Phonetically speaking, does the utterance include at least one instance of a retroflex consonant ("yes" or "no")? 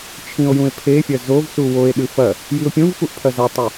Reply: no